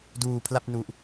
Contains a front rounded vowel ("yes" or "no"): no